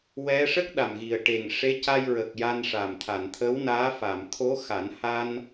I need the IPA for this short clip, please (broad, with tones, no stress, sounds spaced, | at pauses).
w ɛ˧˥ ʂ ə˦˥ k̚ ɗ a˨˩ m ɣ i˨˩ ə̯ ʈ e˨˩ ŋ ʂ e˧˥ c a˧ j ɹ ə˨˩ k̚ j a˧ n ʂ a˨˩ m t̪ʰ a˨˩˨ n t̪ʰ ə˧˥ w n aː˧˥ f a˨˩˨ m t̪ʰ o˧˥ x a˨˩˦ n h a˧ n